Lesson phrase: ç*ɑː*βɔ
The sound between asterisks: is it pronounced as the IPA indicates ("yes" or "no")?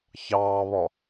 yes